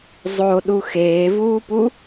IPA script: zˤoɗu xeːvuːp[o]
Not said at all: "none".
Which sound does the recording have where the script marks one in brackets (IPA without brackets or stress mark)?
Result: u